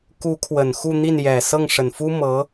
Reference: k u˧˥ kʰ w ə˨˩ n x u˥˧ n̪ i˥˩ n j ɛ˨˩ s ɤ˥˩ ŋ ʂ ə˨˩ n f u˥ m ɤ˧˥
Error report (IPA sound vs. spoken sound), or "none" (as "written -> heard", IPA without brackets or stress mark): none